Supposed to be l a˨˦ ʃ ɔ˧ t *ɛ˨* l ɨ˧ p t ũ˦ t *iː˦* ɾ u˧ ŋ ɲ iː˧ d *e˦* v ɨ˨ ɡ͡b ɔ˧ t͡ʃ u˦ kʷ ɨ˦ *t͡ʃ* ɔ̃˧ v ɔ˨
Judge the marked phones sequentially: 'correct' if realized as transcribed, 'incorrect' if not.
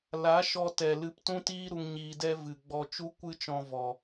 correct, correct, incorrect: ɛ˦, correct

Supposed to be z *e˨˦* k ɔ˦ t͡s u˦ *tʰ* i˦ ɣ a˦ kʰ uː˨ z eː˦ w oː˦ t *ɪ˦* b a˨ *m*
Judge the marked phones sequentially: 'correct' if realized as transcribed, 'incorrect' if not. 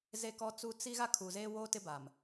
incorrect: e˦, incorrect: t͡s, correct, correct

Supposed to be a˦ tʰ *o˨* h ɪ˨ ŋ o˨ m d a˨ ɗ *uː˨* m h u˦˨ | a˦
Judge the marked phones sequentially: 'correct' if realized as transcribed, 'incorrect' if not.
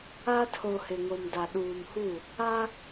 correct, correct

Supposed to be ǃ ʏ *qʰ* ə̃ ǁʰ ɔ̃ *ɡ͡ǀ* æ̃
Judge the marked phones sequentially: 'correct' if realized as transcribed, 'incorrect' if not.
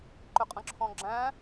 incorrect: qʼ, incorrect: ɡ͡ǁ

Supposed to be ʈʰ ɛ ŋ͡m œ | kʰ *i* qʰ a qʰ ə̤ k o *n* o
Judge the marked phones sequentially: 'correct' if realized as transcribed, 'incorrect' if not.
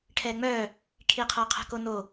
correct, correct

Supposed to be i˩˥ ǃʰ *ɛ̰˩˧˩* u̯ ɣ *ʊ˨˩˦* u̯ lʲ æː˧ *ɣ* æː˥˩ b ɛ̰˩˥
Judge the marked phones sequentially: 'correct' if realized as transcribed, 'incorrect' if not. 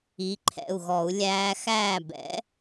correct, incorrect: ɔ˨˩˦, incorrect: x

